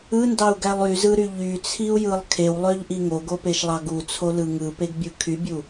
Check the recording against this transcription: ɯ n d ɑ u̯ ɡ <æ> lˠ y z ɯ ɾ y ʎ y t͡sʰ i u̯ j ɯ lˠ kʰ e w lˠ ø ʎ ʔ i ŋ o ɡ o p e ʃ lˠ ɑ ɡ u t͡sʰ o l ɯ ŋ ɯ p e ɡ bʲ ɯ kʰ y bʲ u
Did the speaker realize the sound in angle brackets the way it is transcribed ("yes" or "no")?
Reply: yes